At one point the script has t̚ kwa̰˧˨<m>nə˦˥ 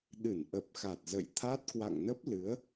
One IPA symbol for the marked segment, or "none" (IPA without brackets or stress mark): ŋ